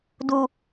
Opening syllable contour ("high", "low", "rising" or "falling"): low